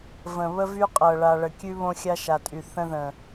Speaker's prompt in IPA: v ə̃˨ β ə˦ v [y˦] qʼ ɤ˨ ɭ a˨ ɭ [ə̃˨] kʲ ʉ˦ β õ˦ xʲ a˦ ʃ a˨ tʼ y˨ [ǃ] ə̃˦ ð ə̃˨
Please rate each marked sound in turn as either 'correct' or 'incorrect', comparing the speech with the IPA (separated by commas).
correct, incorrect, incorrect